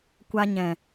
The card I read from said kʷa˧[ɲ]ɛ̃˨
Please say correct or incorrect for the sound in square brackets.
correct